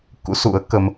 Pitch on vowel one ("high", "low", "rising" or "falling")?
rising